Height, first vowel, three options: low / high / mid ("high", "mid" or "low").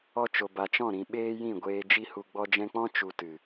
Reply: mid